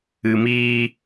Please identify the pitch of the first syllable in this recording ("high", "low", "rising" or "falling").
low